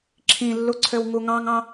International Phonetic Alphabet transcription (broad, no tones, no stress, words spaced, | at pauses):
ǁʰĩlːuǀʰøw ŋuŋɑ̃ŋɑ̃